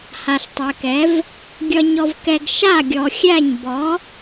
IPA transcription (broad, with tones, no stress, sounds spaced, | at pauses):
h a˨ ɬ tˤ ɛ˨ k ɛ˨˦ v | ɡʲ ʌ˧ ɲ ɔ˧ v k ɛ˧ ɡ ʃ a˦˨ ɡʲ ɔ˨ xʲ æ˦˨ ɲ b ɔ˨˦